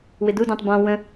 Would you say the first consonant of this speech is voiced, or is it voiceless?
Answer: voiced